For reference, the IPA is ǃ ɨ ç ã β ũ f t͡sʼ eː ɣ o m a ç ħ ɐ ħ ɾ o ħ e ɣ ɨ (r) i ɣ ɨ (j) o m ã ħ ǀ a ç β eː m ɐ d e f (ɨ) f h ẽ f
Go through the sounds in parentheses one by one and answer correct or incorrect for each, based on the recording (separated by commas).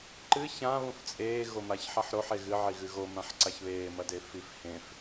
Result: incorrect, incorrect, incorrect